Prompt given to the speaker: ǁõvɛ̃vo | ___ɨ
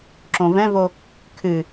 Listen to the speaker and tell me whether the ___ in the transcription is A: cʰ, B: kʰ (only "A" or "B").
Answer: B